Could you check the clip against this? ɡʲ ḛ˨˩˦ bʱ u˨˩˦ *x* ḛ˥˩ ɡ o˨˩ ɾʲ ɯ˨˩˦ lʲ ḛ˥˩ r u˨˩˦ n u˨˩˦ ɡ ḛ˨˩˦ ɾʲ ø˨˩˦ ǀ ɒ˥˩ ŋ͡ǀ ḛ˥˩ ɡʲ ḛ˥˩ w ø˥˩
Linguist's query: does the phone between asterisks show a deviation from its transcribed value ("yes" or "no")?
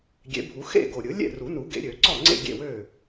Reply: no